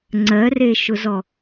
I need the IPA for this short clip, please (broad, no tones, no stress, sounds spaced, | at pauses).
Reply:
ŋ͡ǀ ɜ r e ʃ ʊ z ɔ